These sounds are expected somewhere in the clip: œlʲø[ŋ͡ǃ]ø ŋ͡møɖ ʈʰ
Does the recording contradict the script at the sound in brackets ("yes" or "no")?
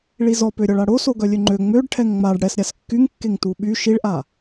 no